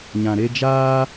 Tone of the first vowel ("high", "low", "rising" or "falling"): low